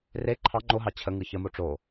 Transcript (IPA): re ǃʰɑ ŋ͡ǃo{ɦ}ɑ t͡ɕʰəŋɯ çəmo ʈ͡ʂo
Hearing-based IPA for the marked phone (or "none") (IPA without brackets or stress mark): ɦ